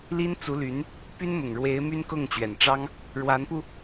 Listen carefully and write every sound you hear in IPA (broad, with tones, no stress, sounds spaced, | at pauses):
l i˥ n t͡s u˧˥ l y˧˥ n | p y˥ n m ʊ˨˩ ŋ ɻ w e˧˥ ɪ̯ m y˥ n k ʊ˥˩ ŋ t͡ɕ ɥ ɛ˨˩ n ʈ͡ʂ ɑ˥ ŋ | ɻ w a˧˥ n p u˧